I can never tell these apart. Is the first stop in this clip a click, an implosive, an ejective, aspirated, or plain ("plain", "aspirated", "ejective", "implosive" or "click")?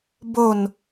plain